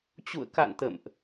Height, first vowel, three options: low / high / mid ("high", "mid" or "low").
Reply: high